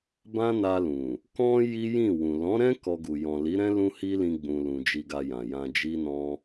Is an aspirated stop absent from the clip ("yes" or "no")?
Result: yes